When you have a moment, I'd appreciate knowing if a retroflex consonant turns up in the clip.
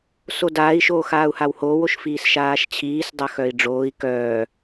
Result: yes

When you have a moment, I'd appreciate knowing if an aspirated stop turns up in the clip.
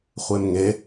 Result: no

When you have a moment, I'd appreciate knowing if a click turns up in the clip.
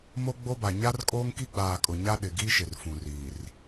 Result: no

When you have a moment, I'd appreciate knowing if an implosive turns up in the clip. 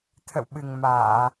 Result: yes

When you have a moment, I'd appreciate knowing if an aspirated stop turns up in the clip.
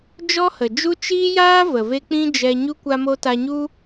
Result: no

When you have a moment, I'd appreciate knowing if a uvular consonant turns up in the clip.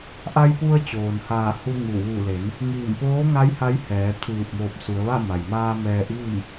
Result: no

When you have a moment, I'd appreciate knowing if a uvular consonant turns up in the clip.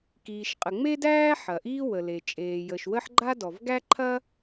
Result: yes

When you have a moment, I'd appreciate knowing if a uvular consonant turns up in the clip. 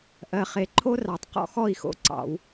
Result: yes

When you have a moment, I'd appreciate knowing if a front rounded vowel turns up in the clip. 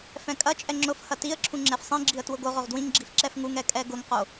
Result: no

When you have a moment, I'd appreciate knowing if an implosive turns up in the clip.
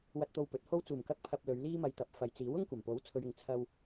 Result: no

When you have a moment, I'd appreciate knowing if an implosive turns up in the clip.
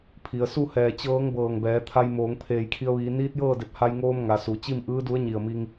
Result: no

